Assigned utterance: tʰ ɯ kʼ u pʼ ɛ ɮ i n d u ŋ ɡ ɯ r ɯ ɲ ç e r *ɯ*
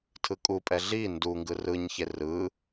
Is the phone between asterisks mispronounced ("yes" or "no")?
no